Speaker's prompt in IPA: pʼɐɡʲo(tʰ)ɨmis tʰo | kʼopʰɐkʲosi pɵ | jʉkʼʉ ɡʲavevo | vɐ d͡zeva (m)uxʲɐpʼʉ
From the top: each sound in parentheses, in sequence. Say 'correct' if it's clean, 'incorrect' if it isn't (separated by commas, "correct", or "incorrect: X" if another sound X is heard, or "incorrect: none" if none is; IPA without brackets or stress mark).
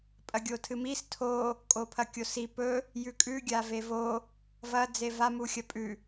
correct, correct